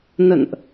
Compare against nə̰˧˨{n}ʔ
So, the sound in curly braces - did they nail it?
yes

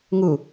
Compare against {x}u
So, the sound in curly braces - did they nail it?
no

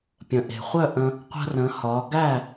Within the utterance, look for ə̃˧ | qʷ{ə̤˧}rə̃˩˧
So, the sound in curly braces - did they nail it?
yes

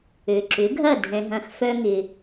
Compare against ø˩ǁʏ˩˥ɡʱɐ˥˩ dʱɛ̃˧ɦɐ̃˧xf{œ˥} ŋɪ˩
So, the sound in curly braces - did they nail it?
yes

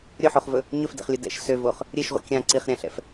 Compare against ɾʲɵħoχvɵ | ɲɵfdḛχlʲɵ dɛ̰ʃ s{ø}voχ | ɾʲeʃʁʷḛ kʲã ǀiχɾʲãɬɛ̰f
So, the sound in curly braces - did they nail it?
yes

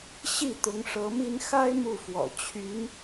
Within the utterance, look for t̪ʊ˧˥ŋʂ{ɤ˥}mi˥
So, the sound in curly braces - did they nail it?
no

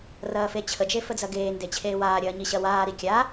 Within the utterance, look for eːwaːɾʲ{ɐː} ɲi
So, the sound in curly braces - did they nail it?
yes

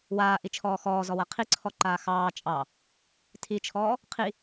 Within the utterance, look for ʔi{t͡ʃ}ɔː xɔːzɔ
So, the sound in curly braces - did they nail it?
no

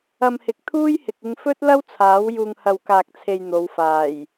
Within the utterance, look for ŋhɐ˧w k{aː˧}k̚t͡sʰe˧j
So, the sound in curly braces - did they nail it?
yes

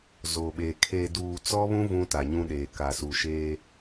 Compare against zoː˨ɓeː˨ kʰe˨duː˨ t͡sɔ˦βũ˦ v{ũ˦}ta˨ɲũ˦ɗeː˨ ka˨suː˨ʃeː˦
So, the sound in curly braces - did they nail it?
yes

